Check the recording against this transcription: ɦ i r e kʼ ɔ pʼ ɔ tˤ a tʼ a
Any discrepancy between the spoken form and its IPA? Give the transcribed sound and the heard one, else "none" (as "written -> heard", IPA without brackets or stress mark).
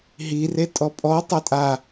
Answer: kʼ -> tʼ